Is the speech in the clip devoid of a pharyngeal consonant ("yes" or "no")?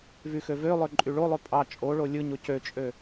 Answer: yes